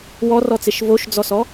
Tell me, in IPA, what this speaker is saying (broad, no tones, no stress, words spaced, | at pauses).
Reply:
wɔrɔt͡seʃ voʃd͡zɔsɔ